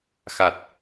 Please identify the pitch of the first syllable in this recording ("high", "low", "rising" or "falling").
low